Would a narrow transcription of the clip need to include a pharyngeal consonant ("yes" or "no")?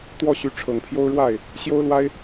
no